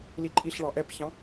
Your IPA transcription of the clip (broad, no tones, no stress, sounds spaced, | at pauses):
l i ǃʼ i ɬ ɭ ɑ ʔ ɛ p ç ɑ̃